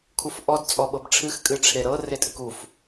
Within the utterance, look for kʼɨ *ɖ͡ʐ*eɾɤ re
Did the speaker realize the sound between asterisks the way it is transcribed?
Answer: no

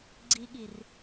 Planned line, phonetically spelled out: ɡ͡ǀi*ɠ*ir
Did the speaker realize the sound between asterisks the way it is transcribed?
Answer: yes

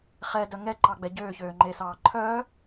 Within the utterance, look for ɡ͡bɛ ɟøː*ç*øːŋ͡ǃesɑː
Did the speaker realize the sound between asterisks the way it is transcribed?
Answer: yes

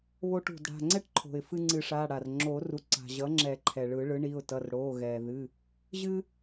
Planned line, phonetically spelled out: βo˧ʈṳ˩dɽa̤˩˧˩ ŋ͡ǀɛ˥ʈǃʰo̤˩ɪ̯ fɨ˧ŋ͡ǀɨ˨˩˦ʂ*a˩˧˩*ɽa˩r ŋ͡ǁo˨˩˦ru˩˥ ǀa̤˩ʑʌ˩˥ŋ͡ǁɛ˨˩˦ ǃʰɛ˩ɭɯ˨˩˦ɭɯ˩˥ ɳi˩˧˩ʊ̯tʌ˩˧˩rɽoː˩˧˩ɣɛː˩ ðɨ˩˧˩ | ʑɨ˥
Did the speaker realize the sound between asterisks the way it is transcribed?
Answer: yes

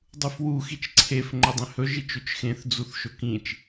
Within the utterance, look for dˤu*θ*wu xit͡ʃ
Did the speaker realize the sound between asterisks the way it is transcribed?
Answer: no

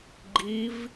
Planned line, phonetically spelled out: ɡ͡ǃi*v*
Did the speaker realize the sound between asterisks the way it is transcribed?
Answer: yes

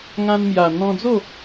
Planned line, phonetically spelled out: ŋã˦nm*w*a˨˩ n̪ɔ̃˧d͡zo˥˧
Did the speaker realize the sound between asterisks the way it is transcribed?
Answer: no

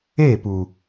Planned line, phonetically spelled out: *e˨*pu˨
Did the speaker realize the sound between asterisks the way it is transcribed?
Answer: no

